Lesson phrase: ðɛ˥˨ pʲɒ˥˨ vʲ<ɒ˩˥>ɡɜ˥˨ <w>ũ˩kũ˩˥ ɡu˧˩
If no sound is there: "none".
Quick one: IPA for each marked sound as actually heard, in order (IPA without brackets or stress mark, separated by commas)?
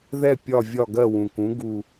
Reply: ɒ˥˨, w